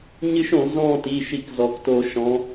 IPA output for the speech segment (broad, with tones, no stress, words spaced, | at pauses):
ɲɨ˦˥ʃõ˧˩˧ zɔ̃ː˦˨ti˩˧˩ ʃi˧˩˧kzɔ˩˧kto˧˩˧ ʃɔ̃˩˧